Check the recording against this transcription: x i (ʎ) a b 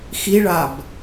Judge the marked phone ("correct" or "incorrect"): incorrect